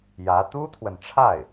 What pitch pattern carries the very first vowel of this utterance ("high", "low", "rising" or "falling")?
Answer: rising